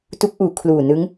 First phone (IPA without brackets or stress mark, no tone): t